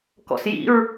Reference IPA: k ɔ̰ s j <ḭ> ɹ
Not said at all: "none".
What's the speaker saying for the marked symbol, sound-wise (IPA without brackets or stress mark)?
ḭ